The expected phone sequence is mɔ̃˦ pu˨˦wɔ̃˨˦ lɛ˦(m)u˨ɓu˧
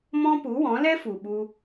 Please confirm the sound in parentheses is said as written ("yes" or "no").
no